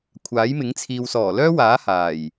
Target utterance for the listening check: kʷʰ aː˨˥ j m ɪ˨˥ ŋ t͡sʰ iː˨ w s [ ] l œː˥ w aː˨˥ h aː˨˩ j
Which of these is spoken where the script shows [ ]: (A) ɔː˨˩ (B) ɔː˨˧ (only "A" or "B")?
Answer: A